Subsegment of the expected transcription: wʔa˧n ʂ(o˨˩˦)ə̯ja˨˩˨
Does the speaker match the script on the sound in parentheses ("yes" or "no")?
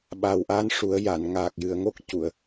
no